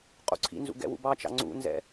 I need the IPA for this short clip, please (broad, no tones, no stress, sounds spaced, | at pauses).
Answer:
qʼ ṵ ǀʰ ḭ n z ṵ ɡ ɛ̰ w ṵ b ɑ t͡ʃ ɑ̰ ŋ͡ǀ ṵ n z ɛ̰